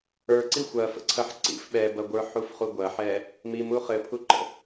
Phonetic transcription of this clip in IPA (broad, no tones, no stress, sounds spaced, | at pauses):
ə˞ ǀ i xʷ ɐ f ə̰ ǀʰ ɐ ħ ǀ ḭ f ɓ ɛ b ɐ ɡʷ ə˞ ħ u f χ u ɡʷ ɐ ħ ɛ | m i m u χ ɘ pʰ u ǃ ə̰